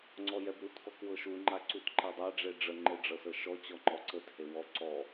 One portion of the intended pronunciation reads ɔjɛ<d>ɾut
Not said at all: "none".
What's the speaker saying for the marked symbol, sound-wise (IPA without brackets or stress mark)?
b